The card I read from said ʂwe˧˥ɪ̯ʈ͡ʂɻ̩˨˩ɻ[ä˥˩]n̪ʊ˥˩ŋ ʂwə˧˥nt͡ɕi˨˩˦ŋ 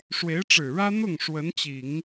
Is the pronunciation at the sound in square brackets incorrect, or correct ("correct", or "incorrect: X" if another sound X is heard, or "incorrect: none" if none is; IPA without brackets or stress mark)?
incorrect: ä˥